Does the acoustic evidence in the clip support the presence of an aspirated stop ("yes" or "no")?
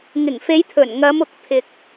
yes